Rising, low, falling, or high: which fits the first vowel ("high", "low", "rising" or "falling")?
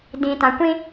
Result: low